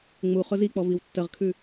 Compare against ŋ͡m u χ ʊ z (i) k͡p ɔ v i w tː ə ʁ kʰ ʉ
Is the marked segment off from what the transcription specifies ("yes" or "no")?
no